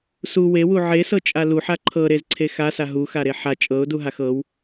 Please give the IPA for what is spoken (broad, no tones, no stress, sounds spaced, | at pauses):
s u w e w u ʕ e s ɤ t͡ʃʼ a l u ħ a ǃʰ ɤ ɾ e z ǀʰ e x a s a ɦ u x a ɾ e ħ a t͡ʃʼ ɤ ʊ̯ d u ɦ a x ɤ w